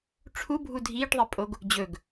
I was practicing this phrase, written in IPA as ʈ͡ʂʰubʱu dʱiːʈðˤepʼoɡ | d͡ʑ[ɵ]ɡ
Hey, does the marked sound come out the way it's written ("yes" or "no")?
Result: yes